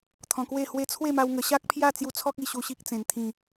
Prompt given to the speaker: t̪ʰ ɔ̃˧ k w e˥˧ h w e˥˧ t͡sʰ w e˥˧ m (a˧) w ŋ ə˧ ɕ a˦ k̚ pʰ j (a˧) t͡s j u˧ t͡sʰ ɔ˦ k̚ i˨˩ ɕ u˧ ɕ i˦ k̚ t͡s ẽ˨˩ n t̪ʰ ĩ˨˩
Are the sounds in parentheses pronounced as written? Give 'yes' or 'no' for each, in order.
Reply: yes, no

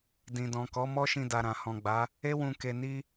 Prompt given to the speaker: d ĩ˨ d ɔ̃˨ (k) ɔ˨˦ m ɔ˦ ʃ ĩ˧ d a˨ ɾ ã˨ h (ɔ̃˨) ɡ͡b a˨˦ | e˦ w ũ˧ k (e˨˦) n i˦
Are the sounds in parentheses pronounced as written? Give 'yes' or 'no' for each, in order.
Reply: yes, yes, no

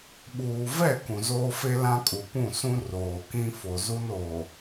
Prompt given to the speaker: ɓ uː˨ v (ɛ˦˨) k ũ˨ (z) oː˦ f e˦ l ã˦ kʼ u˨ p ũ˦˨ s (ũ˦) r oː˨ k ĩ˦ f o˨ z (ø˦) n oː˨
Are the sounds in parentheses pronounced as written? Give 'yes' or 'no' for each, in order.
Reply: yes, yes, yes, no

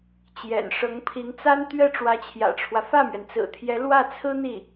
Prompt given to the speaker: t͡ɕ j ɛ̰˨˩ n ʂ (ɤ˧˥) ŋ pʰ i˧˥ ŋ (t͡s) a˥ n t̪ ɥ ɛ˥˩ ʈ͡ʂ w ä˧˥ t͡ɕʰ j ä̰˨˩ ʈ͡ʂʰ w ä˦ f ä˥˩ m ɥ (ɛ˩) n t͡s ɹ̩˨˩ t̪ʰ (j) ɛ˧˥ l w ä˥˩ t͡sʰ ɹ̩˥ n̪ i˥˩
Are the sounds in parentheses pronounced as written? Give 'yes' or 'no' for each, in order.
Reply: yes, yes, yes, yes

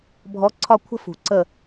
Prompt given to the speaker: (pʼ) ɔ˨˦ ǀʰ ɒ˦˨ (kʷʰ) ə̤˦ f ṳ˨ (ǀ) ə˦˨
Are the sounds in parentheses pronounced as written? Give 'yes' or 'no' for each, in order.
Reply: no, yes, yes

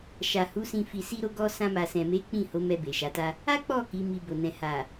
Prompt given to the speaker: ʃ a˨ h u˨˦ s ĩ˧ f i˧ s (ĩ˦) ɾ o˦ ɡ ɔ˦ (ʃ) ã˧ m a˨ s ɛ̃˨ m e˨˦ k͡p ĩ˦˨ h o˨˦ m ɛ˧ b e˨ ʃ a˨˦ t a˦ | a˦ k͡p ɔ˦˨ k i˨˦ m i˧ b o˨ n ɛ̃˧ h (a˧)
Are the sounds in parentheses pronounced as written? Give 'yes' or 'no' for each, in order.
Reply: no, no, no

